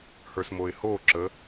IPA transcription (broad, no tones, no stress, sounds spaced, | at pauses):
h ə˞ s m o ɪ̯ h o ǁ ə